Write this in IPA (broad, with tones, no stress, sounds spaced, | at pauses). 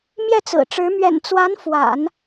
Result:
m j ɛ˥˩ t͡s ɹ̩˨˩ ʈ͡ʂ ɻ̩˧˥ m ɥ ɛ̰˨˩ n t͡s w a˧˥ n f w a̰˨˩˦ n